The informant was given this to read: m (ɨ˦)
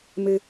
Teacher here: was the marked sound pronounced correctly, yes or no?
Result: yes